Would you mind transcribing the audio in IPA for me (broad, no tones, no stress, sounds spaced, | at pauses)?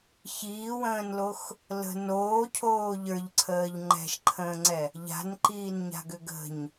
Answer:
ç iː w ə̃ː n l o x | l ə̤ n oː cʰ oː ʎ ə˞ ʎ ǀʰ əː ʎ ŋ͡ǃ ɛ̤ ʃ ǃʰ ə̃ː ŋ͡ǀ ɛ | ʎ a̤ n ǃ iː n ɲ a̤ ɡ ø ɡ ə̤ ɲ